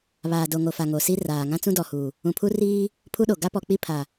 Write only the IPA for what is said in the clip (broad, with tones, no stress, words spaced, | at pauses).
βaː˨do˨ŋo˨fa˨ ŋo˨si˦raː˨ ŋã˦t͡sũ˦dɔ˨huː˨ | ũ˨pʰu˦ riː˦ | pʰu˦ɗo˨ ɡa˦pɔ˨k͡pi˦ pʰa˨